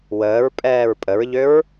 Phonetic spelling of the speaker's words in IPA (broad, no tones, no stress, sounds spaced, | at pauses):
w əː ɹ pʼ ɛː ɹ pʼ ə ɹ ʎ ø ɹ